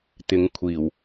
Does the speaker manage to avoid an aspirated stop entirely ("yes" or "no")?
no